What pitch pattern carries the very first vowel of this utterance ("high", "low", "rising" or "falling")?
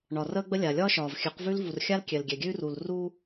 low